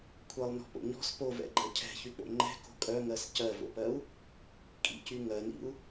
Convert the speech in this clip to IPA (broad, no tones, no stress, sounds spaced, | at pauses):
kʷʰ ɜ lˠ n ɔ̤ p o̰ ɲ ɔ̤ s p o v ɛ̰ ɡ͡ǃ ɜ cʰ ɛ̤ ç y k͡p o̰ ŋ͡ǃ ɛ̤ k o̤ kʼ œ ŋ ɜ s c ɜ v o̰ p ɜ u̯ | kʼ ḭ c y ŋ ɜ n ḭ u̯